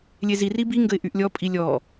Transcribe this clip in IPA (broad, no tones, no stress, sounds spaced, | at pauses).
lʲ e z i r i b i ŋ ɡ ə ɪ̯ ʔ y ʔ lʲ ɔ pʼ i lʲ ɔ